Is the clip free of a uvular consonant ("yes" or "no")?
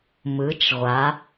no